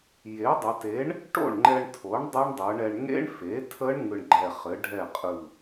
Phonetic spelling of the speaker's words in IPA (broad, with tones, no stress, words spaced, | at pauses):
je˩˥dˤə˩˧te˩˥ɳ | ʈo̰˥˩ɳŋ͡ǃɛ˧ɳtʰo˩˥ɳ dˤɘ˦˥ɳdˤɯ˩˧ɳɛ˧ɳ ŋḛ˦˥ɳfe˩˥tʰə˦˥ɳ ŋɯ˧ɳɡ͡ǃɛ˧˩χɘ˩˥ ɖʱɛ˥˩qʼɯ˧˩